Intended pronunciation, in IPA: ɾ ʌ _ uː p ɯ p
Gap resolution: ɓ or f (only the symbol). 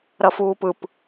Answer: f